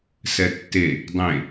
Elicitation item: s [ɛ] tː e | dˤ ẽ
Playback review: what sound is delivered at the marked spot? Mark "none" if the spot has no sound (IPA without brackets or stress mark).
ɛ